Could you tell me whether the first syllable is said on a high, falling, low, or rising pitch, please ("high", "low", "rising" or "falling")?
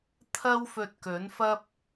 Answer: high